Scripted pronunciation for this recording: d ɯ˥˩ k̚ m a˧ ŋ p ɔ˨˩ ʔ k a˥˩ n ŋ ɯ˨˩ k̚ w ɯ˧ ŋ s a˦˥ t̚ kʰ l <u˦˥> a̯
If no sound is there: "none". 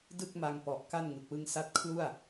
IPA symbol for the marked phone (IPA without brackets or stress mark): u˥˩